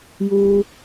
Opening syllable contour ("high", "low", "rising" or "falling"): low